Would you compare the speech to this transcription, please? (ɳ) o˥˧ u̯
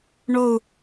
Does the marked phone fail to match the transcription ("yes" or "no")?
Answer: no